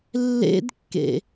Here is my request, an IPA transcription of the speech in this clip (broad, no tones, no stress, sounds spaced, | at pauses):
lː ḛ d kː ḛ